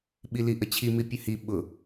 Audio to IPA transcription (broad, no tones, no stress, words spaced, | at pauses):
ɓiliʔət͡ɕʰi mipʲəhi ɓʊ